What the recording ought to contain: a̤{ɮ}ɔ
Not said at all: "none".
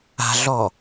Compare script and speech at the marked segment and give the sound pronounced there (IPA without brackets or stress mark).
ɮ